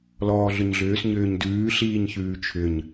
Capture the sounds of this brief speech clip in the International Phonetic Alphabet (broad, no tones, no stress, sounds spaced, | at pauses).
l ɔː ɮ ʏ ɲ ɮ ʏː s ɲ ʏː ɲ d ʉː ɬ iː ɲ ç ʉː t͡ʃʰ ʏ ɲ